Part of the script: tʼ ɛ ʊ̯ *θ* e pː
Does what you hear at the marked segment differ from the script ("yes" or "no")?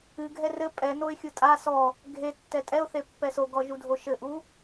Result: no